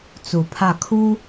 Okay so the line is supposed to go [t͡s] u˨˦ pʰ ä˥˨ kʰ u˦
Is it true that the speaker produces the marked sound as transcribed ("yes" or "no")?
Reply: yes